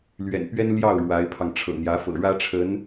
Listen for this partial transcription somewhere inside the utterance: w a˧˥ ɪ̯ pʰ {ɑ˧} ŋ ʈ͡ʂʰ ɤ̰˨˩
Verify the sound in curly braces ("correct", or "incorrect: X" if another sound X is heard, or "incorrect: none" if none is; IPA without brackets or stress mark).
correct